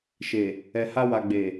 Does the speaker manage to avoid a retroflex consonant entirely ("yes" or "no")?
yes